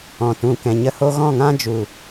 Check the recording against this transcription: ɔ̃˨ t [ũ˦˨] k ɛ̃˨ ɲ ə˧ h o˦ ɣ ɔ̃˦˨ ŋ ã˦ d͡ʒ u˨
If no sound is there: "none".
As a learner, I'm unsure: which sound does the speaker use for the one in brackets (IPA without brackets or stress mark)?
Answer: ũ˨